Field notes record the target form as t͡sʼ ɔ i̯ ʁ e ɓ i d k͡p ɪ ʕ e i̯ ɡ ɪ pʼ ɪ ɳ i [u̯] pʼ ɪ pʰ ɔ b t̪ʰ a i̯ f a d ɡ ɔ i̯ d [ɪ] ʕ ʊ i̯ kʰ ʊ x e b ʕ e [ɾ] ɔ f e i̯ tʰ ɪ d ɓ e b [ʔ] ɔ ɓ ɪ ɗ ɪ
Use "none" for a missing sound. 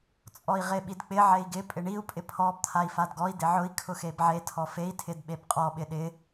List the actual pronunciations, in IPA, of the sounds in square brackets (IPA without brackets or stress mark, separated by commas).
u̯, ɪ, tʰ, qʼ